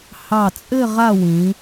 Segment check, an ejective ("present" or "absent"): present